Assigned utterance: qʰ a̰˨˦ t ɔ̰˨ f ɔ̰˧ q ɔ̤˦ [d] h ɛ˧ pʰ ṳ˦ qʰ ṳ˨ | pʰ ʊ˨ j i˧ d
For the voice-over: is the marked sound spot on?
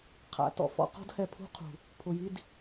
yes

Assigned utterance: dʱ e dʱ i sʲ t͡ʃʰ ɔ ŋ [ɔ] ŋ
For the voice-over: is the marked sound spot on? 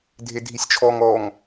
yes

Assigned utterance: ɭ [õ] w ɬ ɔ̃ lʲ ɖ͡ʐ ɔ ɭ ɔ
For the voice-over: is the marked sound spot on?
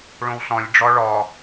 yes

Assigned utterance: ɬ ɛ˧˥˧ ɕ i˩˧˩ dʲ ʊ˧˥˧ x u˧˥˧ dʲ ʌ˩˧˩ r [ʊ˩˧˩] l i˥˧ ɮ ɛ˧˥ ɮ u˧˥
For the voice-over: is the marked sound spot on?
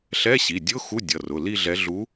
yes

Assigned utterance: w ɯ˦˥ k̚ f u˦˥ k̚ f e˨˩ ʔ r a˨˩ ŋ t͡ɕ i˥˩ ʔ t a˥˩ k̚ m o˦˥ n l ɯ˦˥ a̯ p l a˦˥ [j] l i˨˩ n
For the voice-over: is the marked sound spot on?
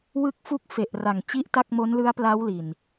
no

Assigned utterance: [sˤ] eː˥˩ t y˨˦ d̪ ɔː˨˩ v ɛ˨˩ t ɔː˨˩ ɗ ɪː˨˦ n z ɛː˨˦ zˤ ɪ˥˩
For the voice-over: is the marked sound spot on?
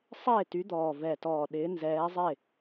yes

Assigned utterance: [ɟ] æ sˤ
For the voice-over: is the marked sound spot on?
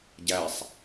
yes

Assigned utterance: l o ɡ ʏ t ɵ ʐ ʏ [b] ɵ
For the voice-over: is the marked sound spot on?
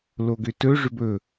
yes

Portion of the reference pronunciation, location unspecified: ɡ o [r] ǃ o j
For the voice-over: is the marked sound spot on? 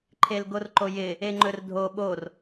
yes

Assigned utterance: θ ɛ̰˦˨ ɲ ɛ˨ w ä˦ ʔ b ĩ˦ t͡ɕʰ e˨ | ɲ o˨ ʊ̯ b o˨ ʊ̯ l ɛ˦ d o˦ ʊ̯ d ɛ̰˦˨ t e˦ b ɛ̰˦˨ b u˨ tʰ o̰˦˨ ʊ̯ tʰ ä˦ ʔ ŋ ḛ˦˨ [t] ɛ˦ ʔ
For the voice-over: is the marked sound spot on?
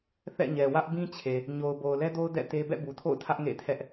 no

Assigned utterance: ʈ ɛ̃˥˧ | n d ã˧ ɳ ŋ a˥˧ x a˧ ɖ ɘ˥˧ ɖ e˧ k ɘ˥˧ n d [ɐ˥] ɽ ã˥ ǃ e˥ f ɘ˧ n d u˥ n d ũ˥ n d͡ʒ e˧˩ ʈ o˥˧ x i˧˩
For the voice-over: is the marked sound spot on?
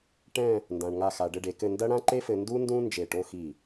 yes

